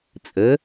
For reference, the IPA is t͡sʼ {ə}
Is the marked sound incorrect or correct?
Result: correct